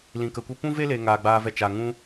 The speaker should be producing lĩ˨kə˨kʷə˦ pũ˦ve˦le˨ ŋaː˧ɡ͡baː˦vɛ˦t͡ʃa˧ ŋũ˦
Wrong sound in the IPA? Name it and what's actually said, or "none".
none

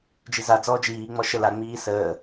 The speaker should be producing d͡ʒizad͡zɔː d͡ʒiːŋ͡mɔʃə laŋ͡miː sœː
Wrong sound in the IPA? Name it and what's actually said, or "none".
œː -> əː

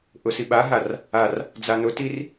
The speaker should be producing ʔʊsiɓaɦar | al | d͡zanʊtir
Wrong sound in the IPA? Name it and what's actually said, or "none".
l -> r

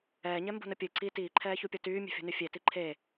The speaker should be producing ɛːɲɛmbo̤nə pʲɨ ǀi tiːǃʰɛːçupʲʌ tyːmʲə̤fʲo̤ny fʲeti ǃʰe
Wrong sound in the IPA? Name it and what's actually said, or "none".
none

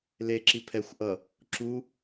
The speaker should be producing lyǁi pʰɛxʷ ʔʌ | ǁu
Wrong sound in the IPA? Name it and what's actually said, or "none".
y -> e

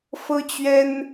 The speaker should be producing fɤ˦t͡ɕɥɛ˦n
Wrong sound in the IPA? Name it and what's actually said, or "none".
none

